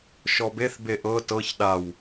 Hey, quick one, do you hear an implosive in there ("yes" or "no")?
yes